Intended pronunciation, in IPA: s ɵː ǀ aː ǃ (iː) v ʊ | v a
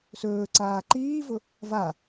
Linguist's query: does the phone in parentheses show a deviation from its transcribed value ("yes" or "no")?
no